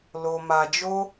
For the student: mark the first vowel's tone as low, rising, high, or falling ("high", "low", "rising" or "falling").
low